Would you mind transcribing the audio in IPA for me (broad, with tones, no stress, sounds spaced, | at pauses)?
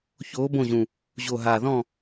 ç oː˨˦ b õ˦˨ ʑ ũ˨˩ | ʑ o˨˩ ɦ aː˨˩ ð ɔ̃˦˨